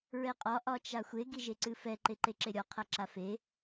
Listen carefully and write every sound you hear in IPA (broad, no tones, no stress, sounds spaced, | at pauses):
ɹ ɛ qʼ ɒ ʔ ɒ t͡ʃ a xʷ e ɡ i ʒ e ǀ ɨ f ɛ ǃ e ǃ e ǁ e ɾʲ ɒ qʰ a ǁ a f e